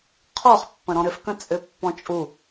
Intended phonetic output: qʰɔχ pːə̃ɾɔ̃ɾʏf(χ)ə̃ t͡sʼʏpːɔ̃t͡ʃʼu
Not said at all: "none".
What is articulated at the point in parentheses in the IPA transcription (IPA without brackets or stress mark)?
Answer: k